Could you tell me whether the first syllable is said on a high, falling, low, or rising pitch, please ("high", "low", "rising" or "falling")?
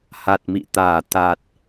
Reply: low